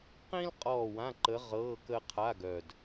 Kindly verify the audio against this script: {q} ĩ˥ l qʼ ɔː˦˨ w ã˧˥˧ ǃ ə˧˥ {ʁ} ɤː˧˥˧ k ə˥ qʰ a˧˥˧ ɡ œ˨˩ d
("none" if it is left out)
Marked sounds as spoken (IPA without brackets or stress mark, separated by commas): q, ʁ